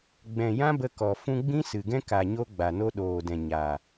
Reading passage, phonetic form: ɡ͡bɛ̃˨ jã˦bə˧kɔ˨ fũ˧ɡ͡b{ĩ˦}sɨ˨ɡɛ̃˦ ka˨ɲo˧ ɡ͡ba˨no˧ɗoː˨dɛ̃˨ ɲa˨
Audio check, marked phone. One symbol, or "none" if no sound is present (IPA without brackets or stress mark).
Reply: ĩ˦